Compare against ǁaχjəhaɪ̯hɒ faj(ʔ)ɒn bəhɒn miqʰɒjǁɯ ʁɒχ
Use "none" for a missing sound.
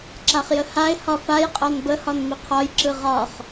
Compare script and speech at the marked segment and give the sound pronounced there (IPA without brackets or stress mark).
qʼ